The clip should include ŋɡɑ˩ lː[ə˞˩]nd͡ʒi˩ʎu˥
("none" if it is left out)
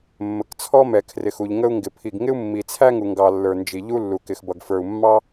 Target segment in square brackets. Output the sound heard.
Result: ə˞˩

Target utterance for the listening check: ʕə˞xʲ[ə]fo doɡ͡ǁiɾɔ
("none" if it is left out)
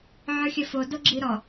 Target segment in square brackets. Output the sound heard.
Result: ə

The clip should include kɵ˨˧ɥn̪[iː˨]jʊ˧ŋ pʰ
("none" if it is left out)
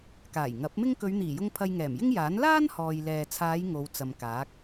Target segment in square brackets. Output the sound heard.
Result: iː˨˩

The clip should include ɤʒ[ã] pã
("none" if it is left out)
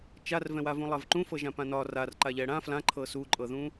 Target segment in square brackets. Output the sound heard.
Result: ã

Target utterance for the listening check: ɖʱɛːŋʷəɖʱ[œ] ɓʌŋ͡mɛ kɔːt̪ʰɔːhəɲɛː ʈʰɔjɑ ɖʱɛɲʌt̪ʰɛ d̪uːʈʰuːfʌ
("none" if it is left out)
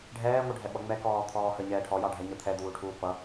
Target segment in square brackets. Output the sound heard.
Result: ɛ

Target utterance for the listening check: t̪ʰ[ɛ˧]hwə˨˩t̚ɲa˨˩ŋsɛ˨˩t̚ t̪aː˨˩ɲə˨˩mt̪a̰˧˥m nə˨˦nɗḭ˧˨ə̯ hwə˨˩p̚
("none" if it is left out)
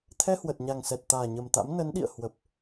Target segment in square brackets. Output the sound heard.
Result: ɛ˧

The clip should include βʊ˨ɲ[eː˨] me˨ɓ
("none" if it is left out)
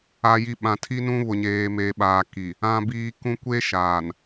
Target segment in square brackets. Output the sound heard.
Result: eː˨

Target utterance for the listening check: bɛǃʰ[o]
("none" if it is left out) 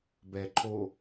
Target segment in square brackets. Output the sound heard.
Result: o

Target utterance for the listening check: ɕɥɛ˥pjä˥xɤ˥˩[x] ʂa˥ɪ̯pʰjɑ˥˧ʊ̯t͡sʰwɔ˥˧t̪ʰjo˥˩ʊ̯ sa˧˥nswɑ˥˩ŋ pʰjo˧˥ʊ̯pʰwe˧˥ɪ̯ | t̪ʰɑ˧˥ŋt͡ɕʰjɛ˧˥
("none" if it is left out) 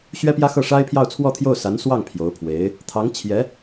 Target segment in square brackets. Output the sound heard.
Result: none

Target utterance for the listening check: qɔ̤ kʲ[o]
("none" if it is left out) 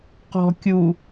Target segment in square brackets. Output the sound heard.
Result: u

